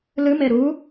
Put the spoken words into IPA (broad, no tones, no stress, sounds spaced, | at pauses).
l ɨ m e ɾ u